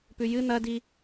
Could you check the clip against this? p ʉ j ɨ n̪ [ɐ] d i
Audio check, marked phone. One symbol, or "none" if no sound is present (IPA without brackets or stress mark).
ɐ